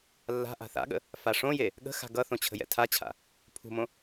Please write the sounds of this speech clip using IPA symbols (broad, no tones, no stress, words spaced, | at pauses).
lːa̤ ʔa̤θa̰ɠə̰ | faʂõje | ɠə̤xa̤ ɡʌθõ t͡ɕʰə̤jɛ̰tʰat͡ɕʰa̰ | pʰṳmõ